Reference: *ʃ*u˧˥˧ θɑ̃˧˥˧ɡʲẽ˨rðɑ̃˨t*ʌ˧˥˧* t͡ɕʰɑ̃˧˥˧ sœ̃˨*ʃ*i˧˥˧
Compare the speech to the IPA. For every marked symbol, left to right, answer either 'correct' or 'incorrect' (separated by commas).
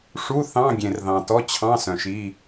incorrect, incorrect, correct